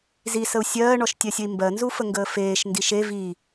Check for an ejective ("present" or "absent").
absent